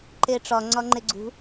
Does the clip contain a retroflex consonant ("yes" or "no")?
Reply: yes